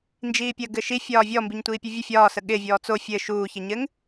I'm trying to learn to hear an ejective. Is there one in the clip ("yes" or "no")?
no